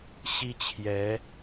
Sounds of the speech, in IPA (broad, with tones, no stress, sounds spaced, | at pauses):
ɕ i˦ t͡ɕʰ j ɛ˨˦